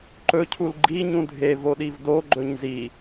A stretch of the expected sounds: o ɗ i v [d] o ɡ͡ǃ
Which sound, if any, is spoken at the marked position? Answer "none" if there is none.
d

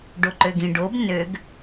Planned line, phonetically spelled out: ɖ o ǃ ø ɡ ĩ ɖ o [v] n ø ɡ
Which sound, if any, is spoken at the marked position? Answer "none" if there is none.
b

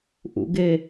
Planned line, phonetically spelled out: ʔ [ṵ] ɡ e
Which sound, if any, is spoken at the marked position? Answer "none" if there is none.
ṵ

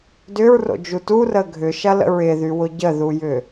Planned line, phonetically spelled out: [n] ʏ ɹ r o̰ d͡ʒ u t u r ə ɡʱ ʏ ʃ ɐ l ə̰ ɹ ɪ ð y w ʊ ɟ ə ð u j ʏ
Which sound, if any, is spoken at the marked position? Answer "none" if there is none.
d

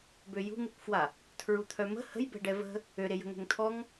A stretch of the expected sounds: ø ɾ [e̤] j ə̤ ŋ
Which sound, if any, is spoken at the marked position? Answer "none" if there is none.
e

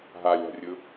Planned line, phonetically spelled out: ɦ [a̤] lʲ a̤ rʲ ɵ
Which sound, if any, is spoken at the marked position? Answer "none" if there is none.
a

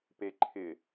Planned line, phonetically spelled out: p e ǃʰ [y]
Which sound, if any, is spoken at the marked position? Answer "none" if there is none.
ɪ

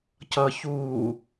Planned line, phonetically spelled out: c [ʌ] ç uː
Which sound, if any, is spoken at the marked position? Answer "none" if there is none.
ʌ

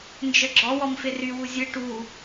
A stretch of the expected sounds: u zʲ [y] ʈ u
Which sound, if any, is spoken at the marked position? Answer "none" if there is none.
ɨ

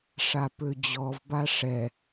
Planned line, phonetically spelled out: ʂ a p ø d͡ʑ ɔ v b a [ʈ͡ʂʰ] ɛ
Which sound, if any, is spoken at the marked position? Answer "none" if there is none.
ʂ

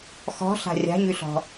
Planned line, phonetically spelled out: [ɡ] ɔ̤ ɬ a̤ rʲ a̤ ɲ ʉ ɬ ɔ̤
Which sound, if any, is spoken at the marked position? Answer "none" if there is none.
x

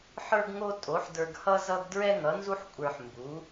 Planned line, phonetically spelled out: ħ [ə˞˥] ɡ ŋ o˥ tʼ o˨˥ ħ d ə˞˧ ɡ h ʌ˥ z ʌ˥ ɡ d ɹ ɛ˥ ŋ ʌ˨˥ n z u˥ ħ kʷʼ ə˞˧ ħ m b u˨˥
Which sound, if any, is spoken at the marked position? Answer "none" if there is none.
ə˞˥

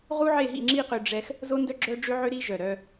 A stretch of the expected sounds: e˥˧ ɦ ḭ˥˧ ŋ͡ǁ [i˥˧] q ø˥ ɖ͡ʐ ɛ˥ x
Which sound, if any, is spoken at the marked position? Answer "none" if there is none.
i˥˧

